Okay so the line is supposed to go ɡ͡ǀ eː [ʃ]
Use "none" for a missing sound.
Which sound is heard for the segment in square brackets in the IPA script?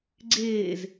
z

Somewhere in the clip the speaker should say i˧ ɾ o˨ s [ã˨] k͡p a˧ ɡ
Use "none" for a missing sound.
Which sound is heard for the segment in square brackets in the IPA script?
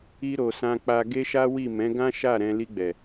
ã˧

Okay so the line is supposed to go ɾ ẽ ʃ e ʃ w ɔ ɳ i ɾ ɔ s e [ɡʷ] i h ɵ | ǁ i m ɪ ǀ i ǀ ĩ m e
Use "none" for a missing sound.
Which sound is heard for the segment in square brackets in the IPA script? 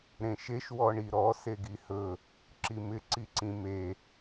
ɡ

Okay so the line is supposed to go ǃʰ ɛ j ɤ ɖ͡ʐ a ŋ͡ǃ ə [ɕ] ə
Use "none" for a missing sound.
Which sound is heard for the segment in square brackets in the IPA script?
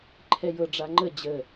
d͡ʑ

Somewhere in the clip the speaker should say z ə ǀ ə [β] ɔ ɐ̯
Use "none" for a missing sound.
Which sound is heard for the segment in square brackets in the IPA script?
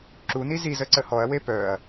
h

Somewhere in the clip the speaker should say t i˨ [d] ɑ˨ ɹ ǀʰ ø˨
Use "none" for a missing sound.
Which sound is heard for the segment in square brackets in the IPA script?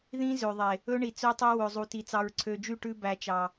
t͡s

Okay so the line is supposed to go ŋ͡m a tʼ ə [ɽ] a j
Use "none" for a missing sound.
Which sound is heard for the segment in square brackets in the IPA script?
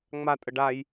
ɖ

